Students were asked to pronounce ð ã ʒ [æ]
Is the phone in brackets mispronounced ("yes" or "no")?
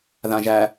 no